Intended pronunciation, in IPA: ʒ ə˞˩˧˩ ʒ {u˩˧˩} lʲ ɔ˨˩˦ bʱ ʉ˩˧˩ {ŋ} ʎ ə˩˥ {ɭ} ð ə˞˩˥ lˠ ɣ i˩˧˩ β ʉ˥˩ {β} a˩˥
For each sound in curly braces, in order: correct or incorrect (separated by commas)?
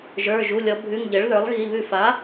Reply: correct, correct, correct, incorrect